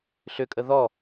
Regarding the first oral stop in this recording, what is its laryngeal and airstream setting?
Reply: ejective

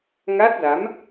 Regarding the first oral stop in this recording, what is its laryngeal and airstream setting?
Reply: plain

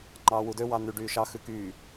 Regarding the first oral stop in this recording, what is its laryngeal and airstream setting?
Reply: click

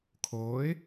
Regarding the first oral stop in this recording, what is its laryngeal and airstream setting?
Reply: aspirated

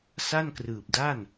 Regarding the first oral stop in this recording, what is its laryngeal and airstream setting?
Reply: plain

